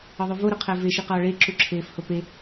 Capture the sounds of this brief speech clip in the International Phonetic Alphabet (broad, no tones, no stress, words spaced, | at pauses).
ɒðˤuvo ɾoqʰæve ʃiqɒːɭe ǁuǁʰeːfhope